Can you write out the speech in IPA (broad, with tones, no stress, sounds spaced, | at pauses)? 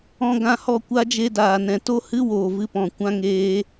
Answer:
ɔ̃˧ ɡ ã˧ h ɔ˦˨ kʷ a˦ d͡ʒ e˧ d aː˨ n ɛ̃˨ t o˦ h ɨ˦ w oː˨ v ɨ˦ p ɔ̃˨ kʷ ã˦ ŋ eː˦